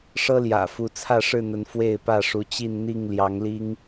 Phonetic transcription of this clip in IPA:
ʂ ɤ˦ l j ä̰˨˩ f u˨˦ t͡sʰ ä˥˨ ʂ ɻ̩˥˨ n̪ ə˨˦ n f w e˥˨ ɪ̯ p ä˥˨ ʂ u˨˦ t͡ɕ i˥˨ n n̪ i˥˨ ŋ l j ɑ˨˦ ŋ l i˦ ŋ

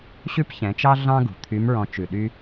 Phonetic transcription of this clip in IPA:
ɕ ʉ˥ p ç ɛ̃˩˧ t͡ʃ ɑ˥ ɮ ɑ̃˥ ɡ ṳ˩ t̪ʰ y˧˥ m ɹ ɔ̃˧ t͡ʃ ʉ˩ ɗ y˧

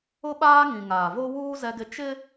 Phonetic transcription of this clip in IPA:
ʊ˦ ɓ aː˦ ŋ ĩ˨ ŋ aː˨ v o˦ w uː˦ z ɛ˦ ɡ ɪ˦ t͡ʃ ɪ˦

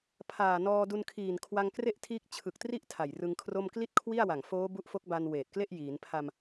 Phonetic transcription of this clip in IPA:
pʰ aː˨˩ n ɔː˧ d u˧ n kʰ iː˨˩ n kʰ w a˧ ŋ k r e˥˩ ʔ tʰ iː˦˥ k̚ t͡ɕʰ ɯ˨˩ k̚ t r i˥˩ ʔ tʰ a˨˩ j r ɯ˧ ŋ kʰ r o˥˩ m k l i˥˩ t̚ kʰ w i˥˩ a̯ w a˨˩ ŋ f oː˦˥ b u˦˥ ʔ f o˦˥ k̚ b a˧ n w eː˨˩ t̚ k l e˥˩ ʔ j iː˩˦ n pʰ a˧ m

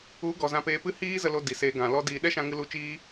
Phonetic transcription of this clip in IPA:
u˨˦ ɡ ɔ˨ z ã˧ p eː˧ p ɨ˦ h iː˦ z ə˧ l o˧ d i˨ s eː˧ ɡ ã˨ l ɔ˦ d iː˧ ɗ ɛ˦ ʃ ã˧ ŋ ɨ˧ l u˨˦ t͡ʃ iː˧

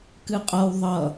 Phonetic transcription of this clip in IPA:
k ɨ qʼ ʌ w ðˤ ʌ

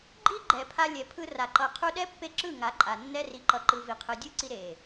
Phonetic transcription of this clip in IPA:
ɡ͡ǃ i˦ ɡ͡ǃ ɛ˨ pʰ a˧ lʲ ɛ˨ pʰ ɯ˧ r a˨ ǃ ʌ˧ qʰ u˦ ɗ ɛ˦ pː e˦ ǁ ɯ˦˨ ŋ a˨˦ ǃʼ a˨ nː ɛ˧ r i˨ ǃ ʌ˨ ǃ ɯ˨ v i˨ qʰ ɯ˨ dʲ ɯ˦ ǀ i˧ ɾ e˨

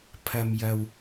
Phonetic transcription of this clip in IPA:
pʰ ɐ˨ m j ɐ˨ w

